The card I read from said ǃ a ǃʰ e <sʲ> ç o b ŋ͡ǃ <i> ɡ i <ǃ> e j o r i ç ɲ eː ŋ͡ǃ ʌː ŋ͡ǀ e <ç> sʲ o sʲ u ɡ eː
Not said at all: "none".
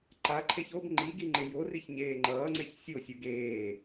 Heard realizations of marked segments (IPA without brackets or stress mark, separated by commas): none, i, ŋ͡ǃ, ç